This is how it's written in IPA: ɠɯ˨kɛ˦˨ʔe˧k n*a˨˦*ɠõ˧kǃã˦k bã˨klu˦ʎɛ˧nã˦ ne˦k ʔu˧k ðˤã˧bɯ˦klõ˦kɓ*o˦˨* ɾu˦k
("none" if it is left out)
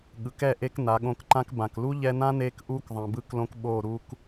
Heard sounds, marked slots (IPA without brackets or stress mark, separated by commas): a˨˦, o˦˨